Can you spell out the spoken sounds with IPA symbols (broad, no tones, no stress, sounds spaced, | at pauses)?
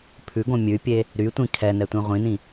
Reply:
pʰ ʉ ɡ õ mʲ ʉ pʲ e | ɾ y tʷ ĩ kʰ ɛ n ɛ tʷ ĩ ʁʷ ĩ n ĩ